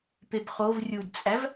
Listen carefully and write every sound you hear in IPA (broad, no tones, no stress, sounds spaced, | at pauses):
p e b χ o v rʲ u d t͡sʼ æ v